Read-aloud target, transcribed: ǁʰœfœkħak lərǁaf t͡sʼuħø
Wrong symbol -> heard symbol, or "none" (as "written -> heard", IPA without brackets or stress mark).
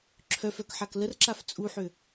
none